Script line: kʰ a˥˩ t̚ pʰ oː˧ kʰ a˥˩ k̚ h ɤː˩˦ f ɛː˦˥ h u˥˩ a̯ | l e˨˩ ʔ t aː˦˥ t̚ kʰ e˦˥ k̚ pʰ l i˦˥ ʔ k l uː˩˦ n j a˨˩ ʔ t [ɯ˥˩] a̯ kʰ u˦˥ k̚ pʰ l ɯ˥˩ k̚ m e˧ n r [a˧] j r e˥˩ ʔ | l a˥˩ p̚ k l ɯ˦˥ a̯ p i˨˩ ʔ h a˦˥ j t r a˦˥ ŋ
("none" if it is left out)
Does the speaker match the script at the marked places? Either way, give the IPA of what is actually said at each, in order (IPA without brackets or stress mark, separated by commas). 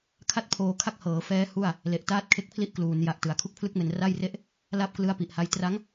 ɯ˩˦, a˥˩